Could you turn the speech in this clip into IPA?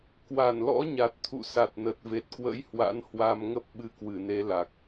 kwa˧˩nlɔ̰˧˥ɲa˨˩t̚t̪ʰṵ˧˨ sa˨˩t̚nə˨˩t̚ve˨˩t̚kwə̰˧˥j hwa̰˧˥nhwa˧m ŋə˦˥p̚ɓɨ˧ kwɨ˧˩ne˨˦ la˨˩k̚

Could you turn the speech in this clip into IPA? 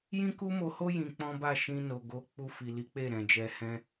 jĩ˦ku˦mo˧ho˦ jĩ˧k͡pɔ̃˦ ba˦˨ʃĩ˧ no˨ ɡo˧ k͡pu˧fi˨li˨˦ k͡pe˦˨ɾɛ̃˨d͡ʒɛ˧ hɛ̃˧

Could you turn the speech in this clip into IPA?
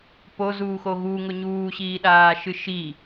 pozuːxo ɣuŋʊ ɲuːɕiːɗaːʃɨ ʃi

